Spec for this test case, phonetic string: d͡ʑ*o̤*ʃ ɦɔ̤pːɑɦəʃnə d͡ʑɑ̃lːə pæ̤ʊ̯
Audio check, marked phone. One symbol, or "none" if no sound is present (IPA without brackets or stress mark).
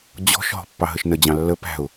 ɔ̤